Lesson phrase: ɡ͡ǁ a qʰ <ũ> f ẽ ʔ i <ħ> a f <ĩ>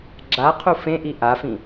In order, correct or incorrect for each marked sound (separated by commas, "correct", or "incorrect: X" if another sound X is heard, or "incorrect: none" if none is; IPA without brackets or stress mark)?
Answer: incorrect: u, incorrect: ʔ, correct